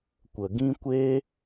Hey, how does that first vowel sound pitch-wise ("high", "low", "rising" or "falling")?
low